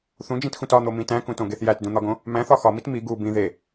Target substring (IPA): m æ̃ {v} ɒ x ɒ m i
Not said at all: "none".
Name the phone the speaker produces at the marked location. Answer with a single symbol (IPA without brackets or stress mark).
θ